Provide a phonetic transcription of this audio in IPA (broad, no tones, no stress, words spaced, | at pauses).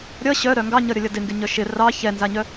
ɾʲʌ ɕœɾœ ŋɡɑɲʌɾʲʌlʲʌ dɪŋɡɪɲœ ʃɪ rɑ çɛnzaɲœ